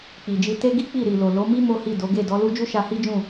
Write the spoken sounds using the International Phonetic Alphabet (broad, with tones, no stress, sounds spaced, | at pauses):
k͡p i˨ d͡ʒ i˧ t e˦ ɡ i˦ k͡p i˦˨ ɾ i˨ l o˨ l o˨˦ m i˦ m o˦ h i˦˨ d o˨˦ ɡ e˦˨ d ɔ˨˦ l u˦ d͡ʒ u˦ ʃ a˧ h i˦ d͡ʒ ũ˦˨